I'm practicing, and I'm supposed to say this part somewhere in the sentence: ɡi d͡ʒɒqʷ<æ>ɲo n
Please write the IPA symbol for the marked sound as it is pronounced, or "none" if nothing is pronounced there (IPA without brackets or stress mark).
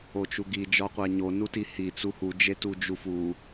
æ